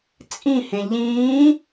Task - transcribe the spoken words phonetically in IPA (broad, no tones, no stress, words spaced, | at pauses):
t͡sʼĩhẽ ʎĩː